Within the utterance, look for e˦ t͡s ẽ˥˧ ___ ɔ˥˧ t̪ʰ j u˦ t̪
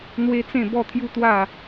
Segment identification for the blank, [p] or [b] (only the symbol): b